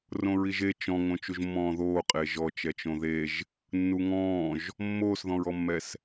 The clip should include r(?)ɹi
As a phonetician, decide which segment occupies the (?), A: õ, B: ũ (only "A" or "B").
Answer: A